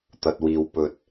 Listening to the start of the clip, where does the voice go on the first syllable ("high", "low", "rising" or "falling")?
low